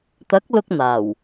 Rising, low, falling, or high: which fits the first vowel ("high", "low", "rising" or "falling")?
rising